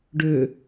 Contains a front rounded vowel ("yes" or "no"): yes